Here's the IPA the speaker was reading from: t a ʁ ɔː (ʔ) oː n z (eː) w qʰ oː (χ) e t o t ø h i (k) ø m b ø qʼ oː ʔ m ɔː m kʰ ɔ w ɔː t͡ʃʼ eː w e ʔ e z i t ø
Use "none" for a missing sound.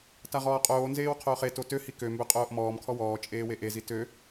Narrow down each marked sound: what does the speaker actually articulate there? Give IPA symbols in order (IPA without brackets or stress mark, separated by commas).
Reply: qʼ, eː, χ, k